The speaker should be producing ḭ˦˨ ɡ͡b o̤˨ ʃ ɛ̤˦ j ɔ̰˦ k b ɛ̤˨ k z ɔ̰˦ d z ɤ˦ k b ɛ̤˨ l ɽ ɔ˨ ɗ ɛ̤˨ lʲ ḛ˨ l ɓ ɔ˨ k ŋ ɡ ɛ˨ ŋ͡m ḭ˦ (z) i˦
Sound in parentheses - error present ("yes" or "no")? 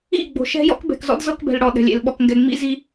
no